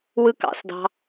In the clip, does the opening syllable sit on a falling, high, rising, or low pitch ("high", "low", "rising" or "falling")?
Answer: high